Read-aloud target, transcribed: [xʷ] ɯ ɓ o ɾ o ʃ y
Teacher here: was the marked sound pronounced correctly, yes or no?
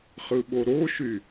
no